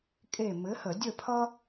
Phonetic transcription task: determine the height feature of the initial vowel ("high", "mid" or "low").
mid